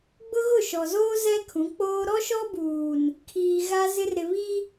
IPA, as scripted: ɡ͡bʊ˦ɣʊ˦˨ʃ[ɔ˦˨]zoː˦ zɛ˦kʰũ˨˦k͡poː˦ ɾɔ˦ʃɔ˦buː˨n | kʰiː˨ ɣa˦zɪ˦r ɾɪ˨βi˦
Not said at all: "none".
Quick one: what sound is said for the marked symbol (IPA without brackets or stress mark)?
ɔ˨